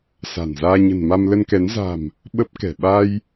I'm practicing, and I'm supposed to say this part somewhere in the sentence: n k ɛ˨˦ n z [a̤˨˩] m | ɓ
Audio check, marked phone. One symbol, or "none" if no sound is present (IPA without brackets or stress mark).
a̤˨˩